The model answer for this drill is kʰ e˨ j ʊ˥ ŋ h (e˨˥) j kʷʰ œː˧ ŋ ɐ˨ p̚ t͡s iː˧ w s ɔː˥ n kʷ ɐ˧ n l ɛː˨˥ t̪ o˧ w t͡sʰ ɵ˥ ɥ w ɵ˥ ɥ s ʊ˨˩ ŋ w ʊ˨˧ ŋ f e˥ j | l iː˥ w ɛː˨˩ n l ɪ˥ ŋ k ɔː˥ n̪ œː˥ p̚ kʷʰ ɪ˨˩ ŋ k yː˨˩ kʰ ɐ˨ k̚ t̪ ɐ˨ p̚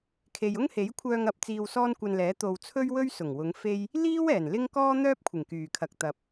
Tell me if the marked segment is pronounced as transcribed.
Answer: yes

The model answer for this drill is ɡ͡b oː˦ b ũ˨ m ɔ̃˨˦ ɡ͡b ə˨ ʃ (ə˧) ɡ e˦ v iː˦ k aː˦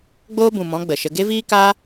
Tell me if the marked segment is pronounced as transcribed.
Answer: yes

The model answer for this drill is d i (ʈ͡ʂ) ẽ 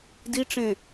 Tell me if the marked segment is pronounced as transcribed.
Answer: yes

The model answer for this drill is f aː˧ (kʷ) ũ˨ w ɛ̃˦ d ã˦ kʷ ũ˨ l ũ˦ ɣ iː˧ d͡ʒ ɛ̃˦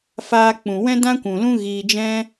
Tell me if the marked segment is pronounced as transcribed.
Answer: no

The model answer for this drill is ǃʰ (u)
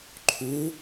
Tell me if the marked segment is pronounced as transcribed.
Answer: yes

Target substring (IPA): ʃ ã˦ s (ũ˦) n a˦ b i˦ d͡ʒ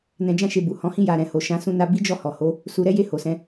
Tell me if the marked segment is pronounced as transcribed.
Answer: yes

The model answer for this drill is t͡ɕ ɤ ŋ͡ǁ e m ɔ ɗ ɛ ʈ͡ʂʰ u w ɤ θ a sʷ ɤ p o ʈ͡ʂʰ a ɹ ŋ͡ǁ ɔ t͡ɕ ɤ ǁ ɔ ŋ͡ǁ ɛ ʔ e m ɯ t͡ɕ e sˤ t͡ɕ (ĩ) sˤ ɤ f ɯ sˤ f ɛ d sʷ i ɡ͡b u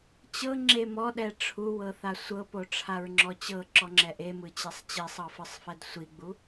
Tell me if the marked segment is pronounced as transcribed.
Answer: no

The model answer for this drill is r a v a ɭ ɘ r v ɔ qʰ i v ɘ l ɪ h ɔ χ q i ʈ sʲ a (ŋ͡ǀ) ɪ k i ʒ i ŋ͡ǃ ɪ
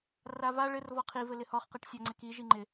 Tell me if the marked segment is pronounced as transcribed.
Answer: yes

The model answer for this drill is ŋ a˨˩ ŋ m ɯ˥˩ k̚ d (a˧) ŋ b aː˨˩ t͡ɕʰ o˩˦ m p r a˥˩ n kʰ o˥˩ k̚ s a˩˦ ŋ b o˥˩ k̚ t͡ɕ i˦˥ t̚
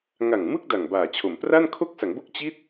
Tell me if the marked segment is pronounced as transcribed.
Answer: no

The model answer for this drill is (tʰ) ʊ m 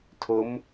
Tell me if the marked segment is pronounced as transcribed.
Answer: yes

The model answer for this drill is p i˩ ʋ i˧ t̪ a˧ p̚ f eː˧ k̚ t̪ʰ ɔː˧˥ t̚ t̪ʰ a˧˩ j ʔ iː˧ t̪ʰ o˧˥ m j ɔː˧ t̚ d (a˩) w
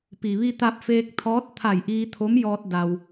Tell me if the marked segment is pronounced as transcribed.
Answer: no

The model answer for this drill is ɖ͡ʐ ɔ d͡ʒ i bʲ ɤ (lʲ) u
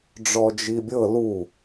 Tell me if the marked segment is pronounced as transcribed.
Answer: no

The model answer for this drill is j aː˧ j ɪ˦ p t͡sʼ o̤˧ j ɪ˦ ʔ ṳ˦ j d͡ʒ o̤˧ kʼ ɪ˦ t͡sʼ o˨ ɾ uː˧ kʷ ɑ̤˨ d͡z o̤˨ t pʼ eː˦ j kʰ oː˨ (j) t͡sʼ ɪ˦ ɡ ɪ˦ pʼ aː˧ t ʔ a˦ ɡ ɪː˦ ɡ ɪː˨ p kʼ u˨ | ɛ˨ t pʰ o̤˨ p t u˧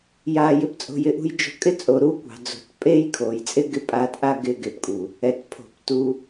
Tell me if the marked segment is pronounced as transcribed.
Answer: yes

